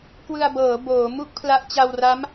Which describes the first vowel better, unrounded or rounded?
unrounded